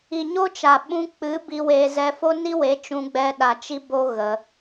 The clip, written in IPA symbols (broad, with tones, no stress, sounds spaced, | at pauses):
i˨ ɲ o˦ t͡ʃ a˨ ɓ ũ˧ k͡p ɨ˨˦ b i˧ w e˧ z ɛ˧ f o˦ n i˦ w e˨˦ t͡ʃ ũ˧ ɡ͡b ɛ˧ ɗ a˨ t͡ʃ i˧ b o˧ ɣ ə˧